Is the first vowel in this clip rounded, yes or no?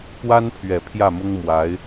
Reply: no